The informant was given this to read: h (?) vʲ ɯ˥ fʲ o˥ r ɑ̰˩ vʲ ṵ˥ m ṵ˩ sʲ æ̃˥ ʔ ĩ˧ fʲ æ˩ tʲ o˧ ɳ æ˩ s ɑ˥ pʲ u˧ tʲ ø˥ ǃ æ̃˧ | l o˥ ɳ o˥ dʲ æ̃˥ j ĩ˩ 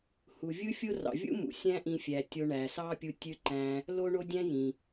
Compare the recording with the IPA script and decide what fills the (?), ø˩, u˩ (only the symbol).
u˩